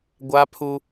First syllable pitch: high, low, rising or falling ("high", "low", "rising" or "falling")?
high